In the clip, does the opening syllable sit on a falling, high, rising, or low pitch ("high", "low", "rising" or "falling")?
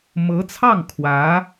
rising